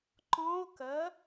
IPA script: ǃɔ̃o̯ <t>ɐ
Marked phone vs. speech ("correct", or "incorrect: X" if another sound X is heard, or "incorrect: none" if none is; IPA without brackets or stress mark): incorrect: k